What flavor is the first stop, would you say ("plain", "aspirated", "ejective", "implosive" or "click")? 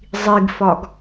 plain